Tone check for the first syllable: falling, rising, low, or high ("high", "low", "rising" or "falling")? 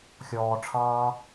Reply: low